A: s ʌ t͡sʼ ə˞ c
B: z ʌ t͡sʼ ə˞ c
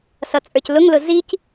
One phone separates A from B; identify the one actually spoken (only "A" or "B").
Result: A